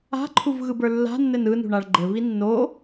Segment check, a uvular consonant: absent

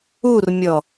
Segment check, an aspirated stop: absent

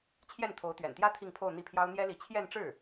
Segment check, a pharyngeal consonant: absent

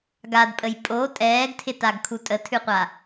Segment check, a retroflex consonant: absent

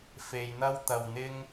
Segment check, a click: absent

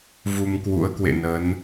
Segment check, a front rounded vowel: absent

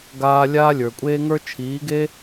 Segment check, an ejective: present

